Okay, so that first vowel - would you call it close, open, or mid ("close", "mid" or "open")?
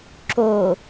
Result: mid